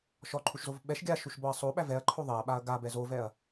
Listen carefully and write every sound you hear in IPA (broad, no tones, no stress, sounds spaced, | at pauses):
ʃ ɔ ǃʰ u ʃ z o v ɓ ɛ ʃ ɡʲ a ʃ u ʃ b ɔ ɐ̯ sˤ o ɓ æ v ɛ ɐ̯ ǃʰ o ðˤ e ɐ̯ ɓ a ɐ̯ ɡ a b ɛ z o v ɛ ɐ̯